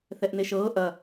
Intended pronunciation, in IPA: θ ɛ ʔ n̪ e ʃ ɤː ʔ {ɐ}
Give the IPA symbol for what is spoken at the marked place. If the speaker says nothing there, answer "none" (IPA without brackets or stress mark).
ɐ